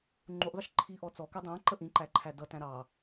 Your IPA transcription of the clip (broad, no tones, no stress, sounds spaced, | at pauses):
ŋ͡ǃ u ʔ ðˤ ɪ ʃ ǃʰ i ʔ ɔ t͡s ɔ k ɛ dˤ æ̃ ǃ ə ʔ ĩ ǃ æ ǃʰ æ d ʌ t æ̃ ɾ ɑ